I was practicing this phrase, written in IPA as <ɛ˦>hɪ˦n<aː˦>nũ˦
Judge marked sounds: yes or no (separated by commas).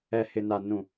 yes, no